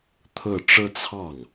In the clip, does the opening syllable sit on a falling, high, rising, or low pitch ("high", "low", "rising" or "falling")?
falling